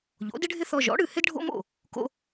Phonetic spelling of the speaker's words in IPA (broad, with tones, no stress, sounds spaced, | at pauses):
ʎ o̰˩˥ d ɪ˥ ɖʱ ɪ˥ θ ɔ˧ ʒ ɔ̰˩˥ ɽ ɨ˥˩ h ɪ˥ d ɖʱ o̰˥ m o̰˥˩ | k o̰˧